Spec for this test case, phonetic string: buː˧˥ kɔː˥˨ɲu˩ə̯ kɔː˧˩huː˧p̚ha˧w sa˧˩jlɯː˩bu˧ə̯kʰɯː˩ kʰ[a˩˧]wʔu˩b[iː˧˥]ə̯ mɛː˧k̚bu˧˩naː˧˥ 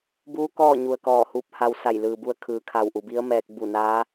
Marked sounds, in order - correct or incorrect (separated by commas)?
incorrect, incorrect